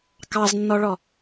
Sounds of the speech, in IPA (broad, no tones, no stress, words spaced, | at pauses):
kɑznːɔɭɔ